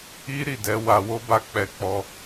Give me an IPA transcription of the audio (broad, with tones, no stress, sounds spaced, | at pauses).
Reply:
i˦ ɾ i˦˨ d ɛ˨˦ w a˧ w o˦ b a˦˨ k͡p ɛ˧ k͡p ɔ˧